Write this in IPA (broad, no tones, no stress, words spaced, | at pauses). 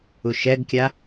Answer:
uʃɛɡkʲa